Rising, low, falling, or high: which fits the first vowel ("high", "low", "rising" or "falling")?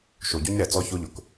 low